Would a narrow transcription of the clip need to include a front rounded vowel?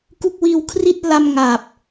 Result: no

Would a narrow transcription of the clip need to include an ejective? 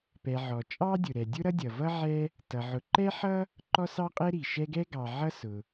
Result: yes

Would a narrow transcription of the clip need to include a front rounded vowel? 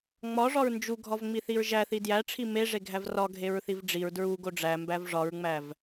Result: no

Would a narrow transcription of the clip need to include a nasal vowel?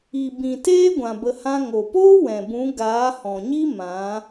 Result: yes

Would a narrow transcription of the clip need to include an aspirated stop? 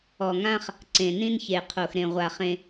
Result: yes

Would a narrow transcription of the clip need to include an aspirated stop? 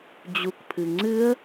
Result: yes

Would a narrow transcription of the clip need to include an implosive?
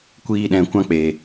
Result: yes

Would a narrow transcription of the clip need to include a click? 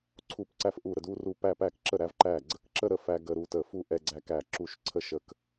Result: yes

